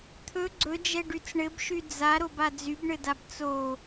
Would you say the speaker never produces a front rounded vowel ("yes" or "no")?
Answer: no